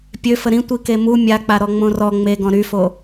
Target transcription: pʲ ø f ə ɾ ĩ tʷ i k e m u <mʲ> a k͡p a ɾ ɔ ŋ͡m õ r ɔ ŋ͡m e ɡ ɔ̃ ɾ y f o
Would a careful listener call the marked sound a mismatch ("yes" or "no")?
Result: no